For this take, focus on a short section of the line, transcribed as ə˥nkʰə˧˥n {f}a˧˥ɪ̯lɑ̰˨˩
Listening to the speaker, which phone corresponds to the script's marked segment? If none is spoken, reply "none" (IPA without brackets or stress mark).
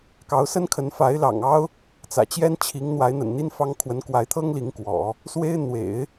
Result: f